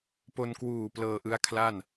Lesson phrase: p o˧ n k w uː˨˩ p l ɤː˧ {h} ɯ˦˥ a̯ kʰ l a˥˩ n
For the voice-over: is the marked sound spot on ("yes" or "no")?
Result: no